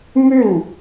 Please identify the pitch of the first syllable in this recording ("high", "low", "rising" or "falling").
falling